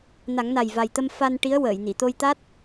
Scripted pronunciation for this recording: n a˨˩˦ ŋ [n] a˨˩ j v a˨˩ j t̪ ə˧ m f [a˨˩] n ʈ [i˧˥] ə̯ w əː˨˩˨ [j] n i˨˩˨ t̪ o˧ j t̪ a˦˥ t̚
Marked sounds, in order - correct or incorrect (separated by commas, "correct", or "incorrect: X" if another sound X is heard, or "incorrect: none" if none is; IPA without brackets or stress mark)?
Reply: correct, incorrect: a˧, correct, correct